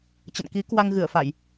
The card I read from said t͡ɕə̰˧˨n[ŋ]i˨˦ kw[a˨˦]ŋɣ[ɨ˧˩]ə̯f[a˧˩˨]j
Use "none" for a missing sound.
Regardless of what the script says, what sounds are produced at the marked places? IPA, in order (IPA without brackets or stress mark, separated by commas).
k, a˧, ɨ˧˩, a˧˩˨